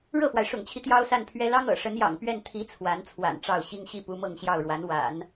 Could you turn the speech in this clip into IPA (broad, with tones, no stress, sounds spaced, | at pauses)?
ɻ ɤ˥˩ f w a˩ ɪ̯ ʂ ʊ̰˨˩ ŋ t͡ɕʰ i˦ t̪ j ɑ˥ ʊ̯ s a˥˩ n pʰ ɥ ɛ˥ l ɑ˥ ŋ ɤ̰˨˩ ʂ ə˧˥ n j ɑ̰˨˩ ŋ p ɥ ɛ˥˩ n t̪ʰ i˧˥ t͡sʰ w a˧˥ n t͡sʰ w a̰˨˩ n ʈ͡ʂ ɑ˥˩ ʊ̯ ɕ i˥ ŋ ɕ i˥ p u˧˥ m ɤ˥˧ ŋ ɕ j ɑ˥˩ ʊ̯ ɻ w a˧˥ n w a̰˨˩˦ n